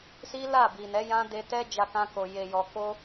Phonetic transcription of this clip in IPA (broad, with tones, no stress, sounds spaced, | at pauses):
s i˦ l a˦˨ b i˨ n ɛ˨˦ j ã˦ d e˧ t ɛ˦ d͡ʒ a˧ k ã˧ k o˨ j e˨ j ɔ˨ k o˧